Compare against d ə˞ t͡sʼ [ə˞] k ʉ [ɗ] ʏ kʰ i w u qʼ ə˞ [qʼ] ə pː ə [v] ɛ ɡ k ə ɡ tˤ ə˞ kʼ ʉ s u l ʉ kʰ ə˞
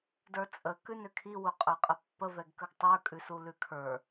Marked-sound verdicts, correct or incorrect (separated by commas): incorrect, incorrect, correct, correct